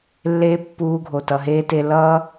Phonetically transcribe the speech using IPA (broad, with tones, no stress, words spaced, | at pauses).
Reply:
lːeː˦pːuː˧ɡʱo˨ tʌ˧ɦeː˦te˦ lʌː˦